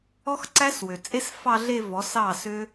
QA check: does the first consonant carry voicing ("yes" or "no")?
no